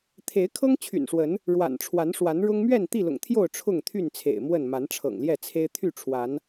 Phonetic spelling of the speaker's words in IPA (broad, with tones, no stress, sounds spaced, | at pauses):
t̪ʰ e˨˦ ɪ̯ kʰ ɤ˦ ŋ t͡ɕʰ y̰˨˩ n ʂ w ə˨˦ n | ɻ w a̰˨˩ n ʈ͡ʂʰ w a˨˦ n ʂ w a˨˦ n ɻ ʊ˦ ŋ m ɥ ɛ˥˨ n t̪ i˥˨ l ʊ̰˨˩ ŋ t̪ʰ j o˥˨ ʊ̯ ʈ͡ʂʰ ʊ˥˨ ŋ t̪ʰ y˥˨ n t͡sʰ ḛ˨˩ ɪ̯ m w ə˥˨ n m a˨˦ n ʈ͡ʂʰ ɤ̰˨˩ ŋ l j ɛ˥˨ t͡sʰ e˦ ɪ̯ t̪ʰ y˥˨ ʈ͡ʂʰ w a˨˦ n